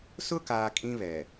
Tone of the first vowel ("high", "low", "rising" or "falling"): high